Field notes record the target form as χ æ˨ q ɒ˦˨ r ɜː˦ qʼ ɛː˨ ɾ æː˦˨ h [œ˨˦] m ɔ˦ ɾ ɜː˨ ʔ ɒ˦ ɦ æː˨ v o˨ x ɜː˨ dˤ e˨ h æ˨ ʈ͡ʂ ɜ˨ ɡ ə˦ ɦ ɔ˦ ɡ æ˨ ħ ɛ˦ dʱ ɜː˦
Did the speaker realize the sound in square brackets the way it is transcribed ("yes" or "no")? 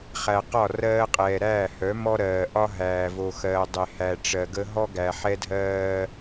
yes